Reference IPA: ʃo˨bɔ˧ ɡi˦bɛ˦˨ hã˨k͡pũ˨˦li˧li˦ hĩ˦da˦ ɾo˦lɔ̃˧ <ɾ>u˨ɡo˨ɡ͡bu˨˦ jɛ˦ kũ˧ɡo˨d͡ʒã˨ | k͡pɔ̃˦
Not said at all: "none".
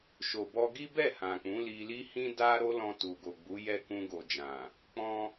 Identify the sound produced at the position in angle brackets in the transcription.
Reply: t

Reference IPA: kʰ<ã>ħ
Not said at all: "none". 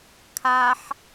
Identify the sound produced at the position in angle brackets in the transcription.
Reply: a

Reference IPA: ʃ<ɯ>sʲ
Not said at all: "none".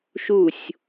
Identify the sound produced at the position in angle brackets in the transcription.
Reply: u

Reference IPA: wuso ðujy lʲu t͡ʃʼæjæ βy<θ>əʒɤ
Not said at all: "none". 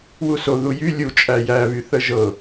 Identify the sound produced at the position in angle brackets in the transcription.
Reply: θ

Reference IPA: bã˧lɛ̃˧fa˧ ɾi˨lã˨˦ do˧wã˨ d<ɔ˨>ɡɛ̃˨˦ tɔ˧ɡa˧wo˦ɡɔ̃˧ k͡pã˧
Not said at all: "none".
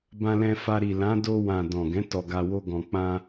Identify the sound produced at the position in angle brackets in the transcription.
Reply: ɔ̃˨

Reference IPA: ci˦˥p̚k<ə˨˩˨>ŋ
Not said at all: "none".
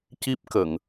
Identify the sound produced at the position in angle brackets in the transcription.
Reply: ə˨˩˨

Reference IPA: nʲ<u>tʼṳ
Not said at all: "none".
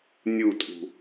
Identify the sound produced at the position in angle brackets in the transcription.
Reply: u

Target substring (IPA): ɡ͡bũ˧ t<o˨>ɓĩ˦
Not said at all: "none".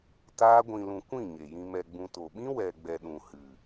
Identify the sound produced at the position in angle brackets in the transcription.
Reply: o˨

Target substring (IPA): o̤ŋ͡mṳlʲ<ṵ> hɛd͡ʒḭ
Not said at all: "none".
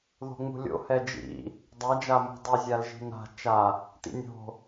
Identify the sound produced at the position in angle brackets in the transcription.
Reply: o̰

